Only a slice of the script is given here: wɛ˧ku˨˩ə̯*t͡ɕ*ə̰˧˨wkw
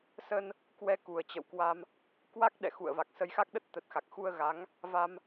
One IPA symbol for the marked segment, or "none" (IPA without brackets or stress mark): t͡ɕ